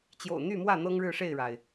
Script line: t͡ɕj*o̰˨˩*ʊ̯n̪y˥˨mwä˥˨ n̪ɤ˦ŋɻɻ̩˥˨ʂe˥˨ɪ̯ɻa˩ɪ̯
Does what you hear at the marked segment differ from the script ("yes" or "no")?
no